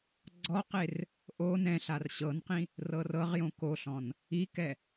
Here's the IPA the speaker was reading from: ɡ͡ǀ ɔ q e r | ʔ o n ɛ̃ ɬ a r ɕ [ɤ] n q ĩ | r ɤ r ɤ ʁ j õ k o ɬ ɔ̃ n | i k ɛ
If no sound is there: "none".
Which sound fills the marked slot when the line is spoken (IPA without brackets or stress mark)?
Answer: ɤ